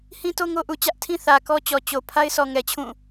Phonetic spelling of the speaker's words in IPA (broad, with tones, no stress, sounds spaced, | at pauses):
h ĩ˦ t o˦ ŋ o˦ ʔ u˨ t͡ɕ ä˦ ʔ tʰ ĩ˦ θ ä˨ k ɔ˦ t͡ɕ ɔ˨ t͡ɕ o˨ pʰ a˦ ɪ̯ s ɔ˨ ŋ ɛ˨ t͡ɕʰ ũ˦˨